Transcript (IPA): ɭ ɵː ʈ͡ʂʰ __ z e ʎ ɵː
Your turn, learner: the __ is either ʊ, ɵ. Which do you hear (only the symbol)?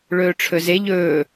ɵ